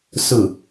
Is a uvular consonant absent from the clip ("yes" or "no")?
yes